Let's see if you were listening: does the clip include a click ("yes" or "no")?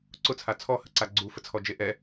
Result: yes